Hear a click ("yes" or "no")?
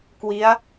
no